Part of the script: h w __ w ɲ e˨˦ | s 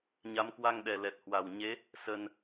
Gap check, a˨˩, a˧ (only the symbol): a˨˩